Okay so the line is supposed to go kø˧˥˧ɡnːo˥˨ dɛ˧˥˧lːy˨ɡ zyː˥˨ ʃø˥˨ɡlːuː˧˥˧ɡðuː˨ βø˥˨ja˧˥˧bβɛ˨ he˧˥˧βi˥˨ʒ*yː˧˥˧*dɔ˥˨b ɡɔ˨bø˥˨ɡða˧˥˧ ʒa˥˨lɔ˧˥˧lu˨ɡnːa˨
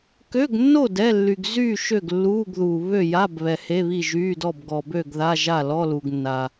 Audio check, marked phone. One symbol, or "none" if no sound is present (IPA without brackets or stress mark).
yː˧˥˧